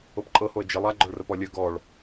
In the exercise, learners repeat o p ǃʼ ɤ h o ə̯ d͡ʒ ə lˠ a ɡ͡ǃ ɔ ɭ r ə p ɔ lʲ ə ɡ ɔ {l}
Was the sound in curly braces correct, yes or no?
no